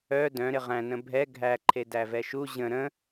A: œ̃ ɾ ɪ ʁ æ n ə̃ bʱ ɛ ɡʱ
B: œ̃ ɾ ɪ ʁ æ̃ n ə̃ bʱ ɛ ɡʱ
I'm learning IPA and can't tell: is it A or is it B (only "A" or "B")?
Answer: B